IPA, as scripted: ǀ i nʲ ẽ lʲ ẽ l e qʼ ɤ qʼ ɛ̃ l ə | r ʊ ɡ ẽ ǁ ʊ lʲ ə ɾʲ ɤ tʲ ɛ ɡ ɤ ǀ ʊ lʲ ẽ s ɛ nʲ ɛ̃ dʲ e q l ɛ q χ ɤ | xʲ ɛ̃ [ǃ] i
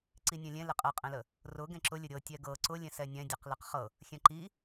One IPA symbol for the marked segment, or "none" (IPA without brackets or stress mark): ǃ